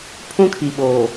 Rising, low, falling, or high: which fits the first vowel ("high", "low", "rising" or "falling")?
high